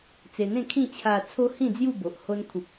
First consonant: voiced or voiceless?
voiceless